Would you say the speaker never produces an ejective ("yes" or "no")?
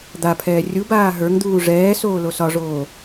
yes